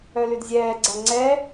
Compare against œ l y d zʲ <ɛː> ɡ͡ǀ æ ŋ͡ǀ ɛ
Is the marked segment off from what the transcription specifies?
no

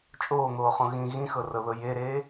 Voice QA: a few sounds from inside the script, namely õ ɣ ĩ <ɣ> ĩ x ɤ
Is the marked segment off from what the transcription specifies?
no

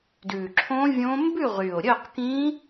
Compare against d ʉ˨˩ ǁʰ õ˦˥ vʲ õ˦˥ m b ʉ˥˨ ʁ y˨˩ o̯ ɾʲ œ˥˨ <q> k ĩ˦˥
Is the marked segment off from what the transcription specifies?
no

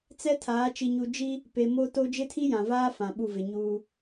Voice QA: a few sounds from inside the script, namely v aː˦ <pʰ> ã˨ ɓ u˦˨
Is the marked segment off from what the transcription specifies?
yes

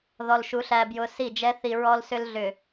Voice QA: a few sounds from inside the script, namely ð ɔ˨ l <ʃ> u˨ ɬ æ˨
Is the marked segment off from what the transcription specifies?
no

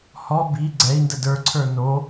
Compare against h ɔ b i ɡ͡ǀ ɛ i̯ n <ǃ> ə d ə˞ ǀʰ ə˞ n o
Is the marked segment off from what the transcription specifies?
yes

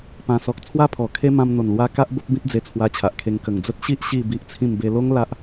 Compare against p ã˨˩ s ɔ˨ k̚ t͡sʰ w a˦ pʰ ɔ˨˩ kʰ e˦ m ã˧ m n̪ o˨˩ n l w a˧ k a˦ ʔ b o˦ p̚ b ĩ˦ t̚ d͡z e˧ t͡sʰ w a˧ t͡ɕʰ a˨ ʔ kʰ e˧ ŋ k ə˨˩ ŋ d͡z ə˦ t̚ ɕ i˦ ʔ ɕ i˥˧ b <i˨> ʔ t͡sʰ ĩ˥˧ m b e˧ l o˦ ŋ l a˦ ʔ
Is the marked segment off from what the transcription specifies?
yes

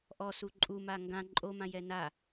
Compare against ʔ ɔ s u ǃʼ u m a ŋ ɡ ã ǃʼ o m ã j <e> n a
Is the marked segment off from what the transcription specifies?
yes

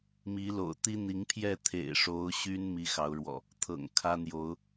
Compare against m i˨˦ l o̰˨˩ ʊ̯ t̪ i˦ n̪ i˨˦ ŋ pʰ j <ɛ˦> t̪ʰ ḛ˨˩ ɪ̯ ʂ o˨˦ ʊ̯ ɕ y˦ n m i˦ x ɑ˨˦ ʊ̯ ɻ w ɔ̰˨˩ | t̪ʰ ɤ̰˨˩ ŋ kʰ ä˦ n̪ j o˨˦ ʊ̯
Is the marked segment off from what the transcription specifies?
yes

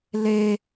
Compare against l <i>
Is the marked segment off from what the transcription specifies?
yes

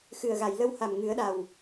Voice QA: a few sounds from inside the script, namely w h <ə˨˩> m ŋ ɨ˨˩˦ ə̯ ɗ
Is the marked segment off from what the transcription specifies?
yes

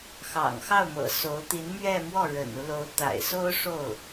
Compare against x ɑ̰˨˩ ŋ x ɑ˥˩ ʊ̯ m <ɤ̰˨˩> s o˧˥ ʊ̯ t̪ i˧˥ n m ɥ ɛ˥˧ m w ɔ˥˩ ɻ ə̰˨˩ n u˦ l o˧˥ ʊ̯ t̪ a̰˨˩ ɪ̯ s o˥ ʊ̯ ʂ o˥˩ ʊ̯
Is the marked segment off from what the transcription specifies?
no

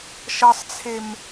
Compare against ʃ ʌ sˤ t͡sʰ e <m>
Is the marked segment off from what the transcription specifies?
no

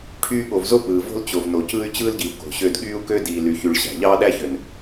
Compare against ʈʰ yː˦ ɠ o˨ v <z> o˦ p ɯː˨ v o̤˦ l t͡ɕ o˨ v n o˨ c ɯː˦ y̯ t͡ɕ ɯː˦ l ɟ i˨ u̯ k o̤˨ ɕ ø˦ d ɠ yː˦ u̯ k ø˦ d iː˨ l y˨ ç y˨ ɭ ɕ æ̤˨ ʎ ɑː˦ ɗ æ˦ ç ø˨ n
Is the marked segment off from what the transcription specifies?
no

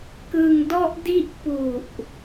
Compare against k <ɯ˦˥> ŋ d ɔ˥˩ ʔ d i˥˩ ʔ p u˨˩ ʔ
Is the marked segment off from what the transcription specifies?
yes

